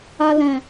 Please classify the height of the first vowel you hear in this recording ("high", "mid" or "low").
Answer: low